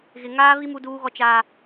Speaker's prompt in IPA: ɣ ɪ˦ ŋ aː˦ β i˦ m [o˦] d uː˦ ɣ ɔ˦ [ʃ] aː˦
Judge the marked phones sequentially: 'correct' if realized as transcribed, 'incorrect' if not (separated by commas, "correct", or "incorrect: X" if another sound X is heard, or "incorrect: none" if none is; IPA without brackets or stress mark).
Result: incorrect: u˦, incorrect: t͡ʃ